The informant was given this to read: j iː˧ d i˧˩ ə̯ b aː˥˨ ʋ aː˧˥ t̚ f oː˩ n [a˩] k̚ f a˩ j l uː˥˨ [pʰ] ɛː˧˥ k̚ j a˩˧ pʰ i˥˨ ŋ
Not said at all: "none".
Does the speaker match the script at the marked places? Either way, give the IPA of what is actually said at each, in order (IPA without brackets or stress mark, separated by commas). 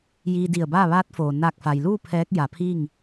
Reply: a˧˩, pʰ